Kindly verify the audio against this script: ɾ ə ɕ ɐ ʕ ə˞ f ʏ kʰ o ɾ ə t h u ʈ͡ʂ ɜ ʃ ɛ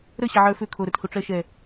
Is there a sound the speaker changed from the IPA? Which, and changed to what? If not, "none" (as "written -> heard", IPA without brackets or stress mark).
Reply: none